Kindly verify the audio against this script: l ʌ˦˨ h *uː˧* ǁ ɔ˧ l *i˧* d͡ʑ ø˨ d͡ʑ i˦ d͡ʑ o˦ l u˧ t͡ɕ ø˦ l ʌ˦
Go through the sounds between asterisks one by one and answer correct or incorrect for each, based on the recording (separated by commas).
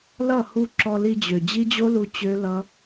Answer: incorrect, correct